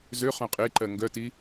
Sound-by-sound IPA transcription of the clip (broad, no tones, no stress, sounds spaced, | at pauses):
z ø χ œ̃ qʼ e ǃ ɜ ŋ ɡ œ t i